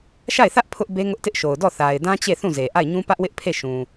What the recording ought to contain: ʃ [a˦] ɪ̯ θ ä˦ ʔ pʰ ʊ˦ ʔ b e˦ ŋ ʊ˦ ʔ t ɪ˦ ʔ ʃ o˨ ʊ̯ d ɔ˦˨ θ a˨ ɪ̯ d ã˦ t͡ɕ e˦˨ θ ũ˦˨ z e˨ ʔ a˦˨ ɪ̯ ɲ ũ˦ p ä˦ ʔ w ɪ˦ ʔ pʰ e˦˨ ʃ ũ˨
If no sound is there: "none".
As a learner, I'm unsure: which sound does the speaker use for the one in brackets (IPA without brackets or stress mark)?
a˦˨